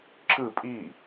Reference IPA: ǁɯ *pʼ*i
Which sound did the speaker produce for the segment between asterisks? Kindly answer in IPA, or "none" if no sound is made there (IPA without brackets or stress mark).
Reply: pʼ